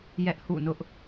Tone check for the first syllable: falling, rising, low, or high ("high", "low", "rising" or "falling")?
high